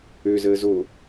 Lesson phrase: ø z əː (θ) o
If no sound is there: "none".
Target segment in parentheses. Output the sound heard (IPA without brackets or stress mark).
z